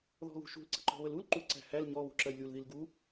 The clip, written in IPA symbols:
ðɔ̤ɣṳʃṳl ǀə̤ǃɔ̤βəlul ǃu ǀæ̤hæl ɲɔ βṳǁɜjlʲul ðilɡu

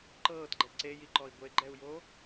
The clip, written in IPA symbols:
ǃɤːtɡ͡ǃɛ ǀejiǃɔi̯ ɡʷeɡ͡ǃɛu̯jo

